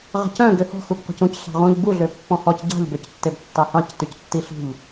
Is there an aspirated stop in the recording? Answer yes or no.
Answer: no